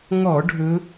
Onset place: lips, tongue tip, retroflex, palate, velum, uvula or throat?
velum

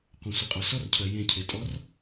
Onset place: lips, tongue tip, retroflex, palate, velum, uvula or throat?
uvula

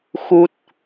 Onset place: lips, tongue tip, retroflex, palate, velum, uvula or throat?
velum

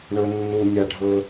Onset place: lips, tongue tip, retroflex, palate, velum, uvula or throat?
retroflex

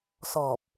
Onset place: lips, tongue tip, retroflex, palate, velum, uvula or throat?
tongue tip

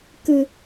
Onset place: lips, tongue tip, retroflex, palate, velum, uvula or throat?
velum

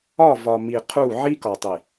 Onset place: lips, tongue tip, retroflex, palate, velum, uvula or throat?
lips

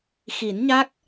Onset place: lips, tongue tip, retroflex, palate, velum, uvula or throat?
velum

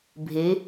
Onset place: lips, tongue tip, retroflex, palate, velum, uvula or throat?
lips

